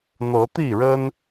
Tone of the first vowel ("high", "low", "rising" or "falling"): rising